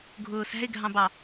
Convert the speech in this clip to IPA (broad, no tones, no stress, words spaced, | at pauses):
ɡʱʊːsæ̤ɪ̯ɡʱɑ̃bɑ